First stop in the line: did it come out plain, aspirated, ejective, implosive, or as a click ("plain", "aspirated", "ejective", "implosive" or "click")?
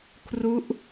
aspirated